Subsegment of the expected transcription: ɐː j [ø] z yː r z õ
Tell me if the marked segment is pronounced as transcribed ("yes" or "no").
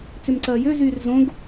yes